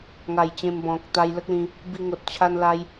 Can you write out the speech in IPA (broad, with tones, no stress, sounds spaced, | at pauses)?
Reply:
ŋ a˨˩ j t͡ɕ ẽ˧ m b ɔ̃˨ k̚ t̪ a˧ j l ə˦ k̚ l ĩ˧ | b i˧ ŋ o˨ t̚ t͡ɕʰ a˧ n l a˧ j